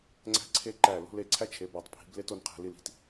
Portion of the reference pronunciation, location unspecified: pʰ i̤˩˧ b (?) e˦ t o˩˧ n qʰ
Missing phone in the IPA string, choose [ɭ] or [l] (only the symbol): l